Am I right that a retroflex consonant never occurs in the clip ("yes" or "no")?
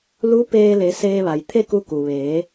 yes